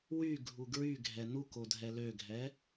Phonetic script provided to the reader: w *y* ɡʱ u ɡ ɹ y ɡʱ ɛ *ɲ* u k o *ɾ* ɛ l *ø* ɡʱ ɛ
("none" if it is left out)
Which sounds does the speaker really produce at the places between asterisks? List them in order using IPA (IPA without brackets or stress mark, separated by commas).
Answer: y, n, dʱ, ø